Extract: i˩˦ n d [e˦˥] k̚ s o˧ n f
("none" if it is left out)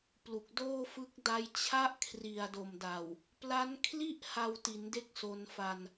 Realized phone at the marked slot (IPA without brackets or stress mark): e˦˥